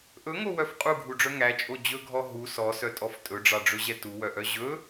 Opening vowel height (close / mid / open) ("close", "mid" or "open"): mid